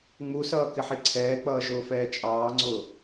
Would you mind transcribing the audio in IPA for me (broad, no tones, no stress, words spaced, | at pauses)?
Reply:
ŋ͡musʌː kɪħiǀʰɛːk͡pʌː ʒʊːfɛːt͡ʃʼɑːŋ͡ǀʊː